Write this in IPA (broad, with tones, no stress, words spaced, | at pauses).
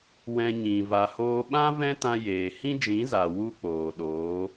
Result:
wɛ̃˦ɲĩ˧ va˧hoː˦ ɓã˦ vɛ̃˦tã˧jeː˨ hĩ˦d͡ʒĩ˨˦za˨ wu˦k͡poː˨ɗoː˨˦